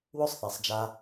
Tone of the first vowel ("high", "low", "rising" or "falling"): high